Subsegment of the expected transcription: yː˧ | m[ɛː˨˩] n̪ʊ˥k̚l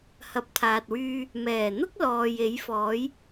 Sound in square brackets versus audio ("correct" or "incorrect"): correct